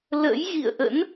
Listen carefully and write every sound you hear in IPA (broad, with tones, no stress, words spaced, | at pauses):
lə̰˧˥jɣḭ˧˨ə̯ʔə̰˧˥n